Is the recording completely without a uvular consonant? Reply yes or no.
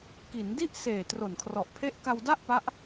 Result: yes